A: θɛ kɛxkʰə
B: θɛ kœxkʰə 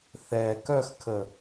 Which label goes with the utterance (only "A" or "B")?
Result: B